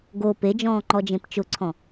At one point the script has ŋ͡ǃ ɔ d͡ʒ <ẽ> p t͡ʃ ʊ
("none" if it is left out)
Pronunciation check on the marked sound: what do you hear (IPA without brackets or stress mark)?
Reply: ẽ